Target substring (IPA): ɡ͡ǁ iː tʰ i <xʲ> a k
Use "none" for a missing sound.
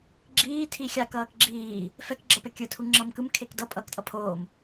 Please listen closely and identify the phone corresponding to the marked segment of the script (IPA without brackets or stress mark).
xʲ